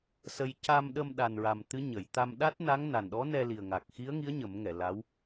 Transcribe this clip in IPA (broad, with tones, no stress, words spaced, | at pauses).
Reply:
sə˧j ca˧mɗə˧mɗa˨˩nɹa˨˩m t̪ɨ˧˥ɲə˨˩˨j t̪a˧m ɗa˦˥t̚na˧˥ŋ na˨˩nɗɔ˧˥nɛ˧li˨˩ə̯ ŋa˨˩k̚xi˧˥ə̯ŋi˧˥ə̯ ɲə˨˩˦mŋɛ˨˩˨ la˧˥w